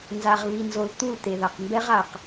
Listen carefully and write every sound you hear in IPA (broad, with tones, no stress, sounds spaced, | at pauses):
n z a˨ ʁ β i˨ n z o˨ l t̪ u˦˨ l t̪ e˨ ð a˨ q m b ɛ˦ ʁ a˨ q